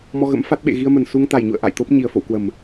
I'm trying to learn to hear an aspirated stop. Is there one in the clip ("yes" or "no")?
no